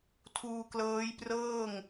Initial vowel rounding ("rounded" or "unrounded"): rounded